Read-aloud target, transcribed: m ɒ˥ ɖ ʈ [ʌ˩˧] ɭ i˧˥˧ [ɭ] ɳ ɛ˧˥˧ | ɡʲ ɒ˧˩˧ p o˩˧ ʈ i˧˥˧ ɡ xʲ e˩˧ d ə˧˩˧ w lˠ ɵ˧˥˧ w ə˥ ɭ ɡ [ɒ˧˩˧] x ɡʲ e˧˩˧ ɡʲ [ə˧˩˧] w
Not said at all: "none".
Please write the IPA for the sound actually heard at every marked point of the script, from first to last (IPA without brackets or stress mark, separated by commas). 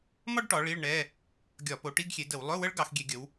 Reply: ɒ˩˧, ɭ, ɑ˧˩˧, ə˩˧